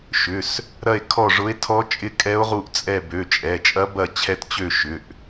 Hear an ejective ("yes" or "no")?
yes